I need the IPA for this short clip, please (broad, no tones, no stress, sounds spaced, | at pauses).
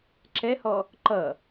ǁ ɛ h ɔ | ǃ ʌ